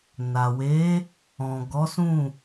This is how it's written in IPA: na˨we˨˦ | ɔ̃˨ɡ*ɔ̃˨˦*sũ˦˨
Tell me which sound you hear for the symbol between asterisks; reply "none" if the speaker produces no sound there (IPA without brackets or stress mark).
ɔ˨˦